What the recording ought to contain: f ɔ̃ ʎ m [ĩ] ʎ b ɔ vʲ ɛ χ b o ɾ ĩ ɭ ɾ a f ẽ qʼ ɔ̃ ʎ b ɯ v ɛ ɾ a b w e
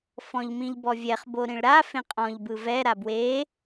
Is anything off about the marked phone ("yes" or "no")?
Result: no